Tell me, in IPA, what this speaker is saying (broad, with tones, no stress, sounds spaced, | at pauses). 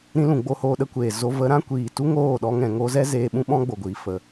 ɾ ĩ˧ l ũ˨ ɡ͡b o˧ h oː˧ ɗ ə˦ kʷ eː˨ z o˧ v ə˨˦ ɾ ã˦ kʷ iː˨ t u˦ ŋ oː˦˨ ɗ ɔ˧ ŋ ɛ̃˨ ŋ o˧ z ɛ˦ z eː˧ ɓ ũ˦ ɓ ɔ̃˦ ɡ͡b o˨ ɡʷ iː˨ f ə˨